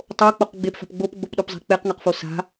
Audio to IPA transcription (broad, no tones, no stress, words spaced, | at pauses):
tˤok͡poq ɡ͡bepfa̤p ɡ͡bopɡ͡bopɗopzˤe̤ k͡peqŋaqfo sa̤